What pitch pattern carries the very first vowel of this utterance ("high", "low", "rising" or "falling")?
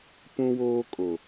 high